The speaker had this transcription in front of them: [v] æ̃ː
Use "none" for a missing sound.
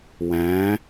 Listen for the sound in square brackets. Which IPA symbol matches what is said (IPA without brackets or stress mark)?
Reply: w